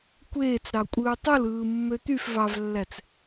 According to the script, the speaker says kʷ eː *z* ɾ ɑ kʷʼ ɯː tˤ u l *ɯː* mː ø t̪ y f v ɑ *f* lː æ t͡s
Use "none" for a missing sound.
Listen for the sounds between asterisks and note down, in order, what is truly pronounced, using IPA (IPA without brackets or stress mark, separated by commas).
t͡s, ɯː, v